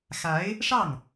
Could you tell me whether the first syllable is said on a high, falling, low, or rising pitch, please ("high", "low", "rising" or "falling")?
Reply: rising